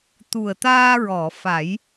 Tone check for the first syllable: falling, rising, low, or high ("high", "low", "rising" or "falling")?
low